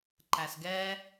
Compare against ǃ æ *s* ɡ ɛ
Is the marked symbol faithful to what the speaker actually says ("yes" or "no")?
yes